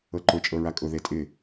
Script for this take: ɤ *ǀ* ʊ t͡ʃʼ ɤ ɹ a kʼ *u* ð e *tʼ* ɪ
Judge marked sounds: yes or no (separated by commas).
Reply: no, no, yes